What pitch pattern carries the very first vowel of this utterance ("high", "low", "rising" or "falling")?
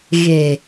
low